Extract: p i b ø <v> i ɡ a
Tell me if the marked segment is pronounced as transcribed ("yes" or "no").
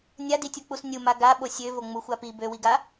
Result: no